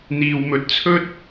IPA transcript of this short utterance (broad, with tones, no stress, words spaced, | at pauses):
n̪iː˧wmɵ˧t̚ t͡sʰɵ˥t̚